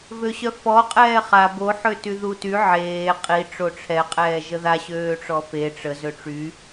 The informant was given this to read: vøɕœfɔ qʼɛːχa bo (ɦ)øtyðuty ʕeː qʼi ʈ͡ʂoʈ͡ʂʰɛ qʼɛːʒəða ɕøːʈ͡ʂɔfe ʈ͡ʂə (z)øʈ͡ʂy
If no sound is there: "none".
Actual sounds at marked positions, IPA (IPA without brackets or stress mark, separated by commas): ħ, z